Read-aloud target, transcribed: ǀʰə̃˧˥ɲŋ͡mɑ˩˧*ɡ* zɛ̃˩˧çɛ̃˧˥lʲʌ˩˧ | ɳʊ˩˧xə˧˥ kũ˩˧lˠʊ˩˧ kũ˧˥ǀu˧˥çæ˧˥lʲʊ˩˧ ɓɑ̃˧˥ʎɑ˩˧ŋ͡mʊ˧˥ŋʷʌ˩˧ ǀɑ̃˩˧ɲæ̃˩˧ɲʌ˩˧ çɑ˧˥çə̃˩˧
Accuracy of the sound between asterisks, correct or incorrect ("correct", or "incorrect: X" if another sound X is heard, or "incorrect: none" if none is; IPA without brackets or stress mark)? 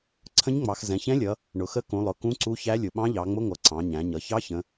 incorrect: x